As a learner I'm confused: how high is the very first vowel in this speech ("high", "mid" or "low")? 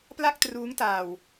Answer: low